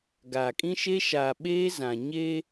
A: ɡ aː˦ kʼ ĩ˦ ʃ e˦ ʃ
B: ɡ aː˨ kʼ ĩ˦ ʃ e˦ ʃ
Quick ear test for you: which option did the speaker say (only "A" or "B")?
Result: B